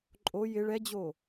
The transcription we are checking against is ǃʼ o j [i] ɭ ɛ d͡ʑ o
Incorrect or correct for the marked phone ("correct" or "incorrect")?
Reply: incorrect